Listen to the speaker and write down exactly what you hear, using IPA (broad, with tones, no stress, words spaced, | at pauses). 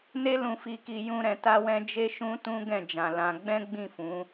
ne˦lũ˧fi˧ki˧ jũ˦ɾɛ̃˧ta˦wɛ̃˦ d͡ʒe˦ʃũ˦tũ˦ ɡɛ̃˦˨d͡ʒã˨lã˧ ɡ͡bɛ̃˦ ɡ͡bĩ˦˨fũ˨˦